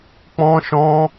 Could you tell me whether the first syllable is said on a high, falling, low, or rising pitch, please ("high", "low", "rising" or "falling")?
high